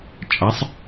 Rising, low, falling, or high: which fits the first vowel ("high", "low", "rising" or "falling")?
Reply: rising